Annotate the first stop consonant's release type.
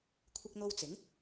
aspirated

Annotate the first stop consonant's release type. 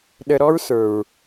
implosive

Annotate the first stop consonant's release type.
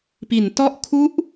plain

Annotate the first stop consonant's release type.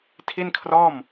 aspirated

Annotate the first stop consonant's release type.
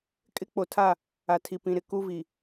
ejective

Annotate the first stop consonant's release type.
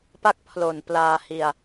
plain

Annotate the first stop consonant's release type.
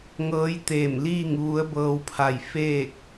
plain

